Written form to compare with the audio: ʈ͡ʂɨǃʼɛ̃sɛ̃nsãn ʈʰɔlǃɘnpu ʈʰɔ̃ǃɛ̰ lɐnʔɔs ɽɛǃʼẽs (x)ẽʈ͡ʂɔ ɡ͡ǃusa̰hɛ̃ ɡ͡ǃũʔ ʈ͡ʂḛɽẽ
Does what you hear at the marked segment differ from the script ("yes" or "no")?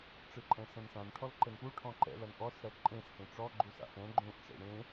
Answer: yes